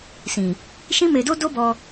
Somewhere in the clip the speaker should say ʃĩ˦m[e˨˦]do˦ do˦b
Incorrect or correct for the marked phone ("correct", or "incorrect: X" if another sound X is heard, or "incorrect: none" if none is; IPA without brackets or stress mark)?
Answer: incorrect: e˧